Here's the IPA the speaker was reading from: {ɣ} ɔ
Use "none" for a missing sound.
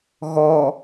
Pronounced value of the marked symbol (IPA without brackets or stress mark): ɣ